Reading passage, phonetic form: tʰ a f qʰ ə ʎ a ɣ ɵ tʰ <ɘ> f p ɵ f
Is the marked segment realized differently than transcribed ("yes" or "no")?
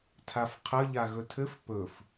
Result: no